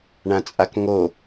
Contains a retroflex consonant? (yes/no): yes